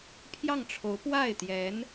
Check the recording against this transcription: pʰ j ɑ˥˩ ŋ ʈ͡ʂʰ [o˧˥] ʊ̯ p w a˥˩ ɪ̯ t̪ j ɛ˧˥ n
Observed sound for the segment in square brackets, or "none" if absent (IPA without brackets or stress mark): o˧˥